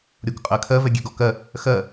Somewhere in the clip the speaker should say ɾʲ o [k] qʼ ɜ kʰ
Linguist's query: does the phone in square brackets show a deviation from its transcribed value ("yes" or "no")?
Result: no